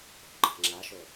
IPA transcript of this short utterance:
o̤ɡ͡ǃa̤ ŋ͡ǁaʃo

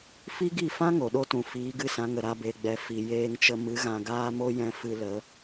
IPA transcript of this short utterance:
fi˦ɡi˦˨fã˦ ŋo˨ɗo˦tũ˨ fiː˨˦ɡɨ˦˨sã˨˦ŋə˨ ɾa˧be˨ɡ͡bɛ˨ fi˨ jeː˧ŋt͡ʃə˧mɨ˨˦ ɣã˧ɡaː˦mo˦jɛ̃˧ fɨ˧lə˨˦

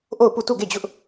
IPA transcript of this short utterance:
ʔo˦˨ʊ̯pu˦˨ tu˦˨ɡe˦˨d͡ʑʊ˦ʔ

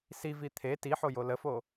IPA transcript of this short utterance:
sivi t̪ʰe tiħojo ləfo

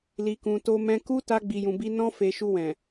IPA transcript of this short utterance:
li˨kũ˨ to˧mɛ̃˧ ku˧ ta˧ɡ͡bi˨jũ˨bi˧ nɔ̃˧fe˨ ʃu˧wɛ̃˨

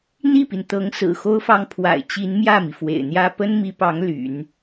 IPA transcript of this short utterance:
n̪i˥˩pi˩nt̪ɤ˧˥ŋ sɹ̩˨˩xo˥ʊ̯fɑ˥ŋ pʰwa̰˨˩ɪ̯t͡ɕi˧˥nmjä˥˩mi˩ fwḛ˨˩ɪ̯n̪jä˥ pə˥nmi˧˥pɑ˧˥ŋ ly̰˨˩˦n

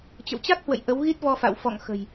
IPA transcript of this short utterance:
t͡ɕə̰˧˨wt͡ɕa˦˥k̚hwə̰˧˨j ʔə˨˦wɣi˦˥t̚vɔ˧fa̰˧˨w fɔ̰˧˨ŋxə̤˨˩j

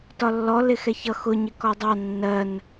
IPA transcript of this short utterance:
tɒlːɔ lɪxɛçʌ xʊ ɲɪkɔdˤɑ nːɜn

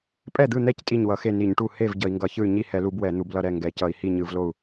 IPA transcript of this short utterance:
pʼɛ˥˩d̪ɯ˥˩n̪ɛ˥˩c tʼi˥˩ɲwʌ˧˩˧xe˥˩ ni˧˩˧ɲʈu˥˩ he˥˩v ɟʌ˧˩˧i̯ŋɡʌ˧˩˧çɯ˥˩y̯ ɲi˥˩hɛ˧˩˧lu˧˩˧b wɛ˧˩˧n̪u˧˩˧blʌ˥˩ ɾɛ˥˩ ŋɡɛ˧˩˧cʌ˧˩˧i̯ hi˥˩ ɲɯ˧˩˧vlo˥˩u̯

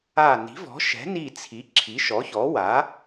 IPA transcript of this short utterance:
a˧˩ ni̤˩˥vɔ̤˩˥ʃɛ̤˩˥ni˧˩ t͡sʰi˩˥ ǁʰi˩˥ʃɔ˩˥çɔ˩˥ wa˩˥

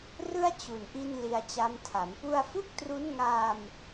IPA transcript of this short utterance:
rɯ˥˩a̯t͡ɕu˨˩nʔi˧n li˧a̯t͡ɕa˦˥m tʰa˩˦mpu˥˩a̯ fu˥˩k̚tru˦˥n ŋa˧m

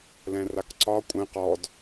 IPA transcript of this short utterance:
lɛ̃rakǀɒ kʷʼɛ̃ qɔd

